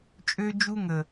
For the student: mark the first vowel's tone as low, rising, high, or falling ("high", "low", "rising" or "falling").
high